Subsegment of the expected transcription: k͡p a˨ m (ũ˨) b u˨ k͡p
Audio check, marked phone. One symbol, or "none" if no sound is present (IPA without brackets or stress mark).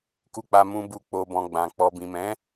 ũ˨